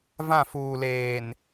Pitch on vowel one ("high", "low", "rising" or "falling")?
falling